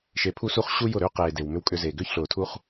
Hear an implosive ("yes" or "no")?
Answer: no